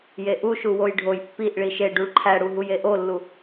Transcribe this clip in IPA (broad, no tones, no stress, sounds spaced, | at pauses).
j e ʔ u ʃ u w o j ɖʱ o j pː i ʔ ɭ i ʃ e ɖ u ɭ ǃʰ æ ɽ u ɦ u j e ʔ o lː u